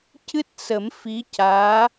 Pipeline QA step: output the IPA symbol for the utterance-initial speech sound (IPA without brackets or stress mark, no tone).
c